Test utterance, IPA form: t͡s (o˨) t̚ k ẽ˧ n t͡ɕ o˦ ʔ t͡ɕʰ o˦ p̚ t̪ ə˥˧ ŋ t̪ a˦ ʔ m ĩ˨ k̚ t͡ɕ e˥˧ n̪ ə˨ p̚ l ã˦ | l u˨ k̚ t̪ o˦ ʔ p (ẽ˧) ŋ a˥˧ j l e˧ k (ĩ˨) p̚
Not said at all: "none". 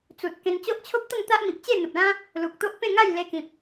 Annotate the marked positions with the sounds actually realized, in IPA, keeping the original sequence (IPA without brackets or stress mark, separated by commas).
u˨, ẽ˥˧, ĩ˨